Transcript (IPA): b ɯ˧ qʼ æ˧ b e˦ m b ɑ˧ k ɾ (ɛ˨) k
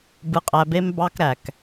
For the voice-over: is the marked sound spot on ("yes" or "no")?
no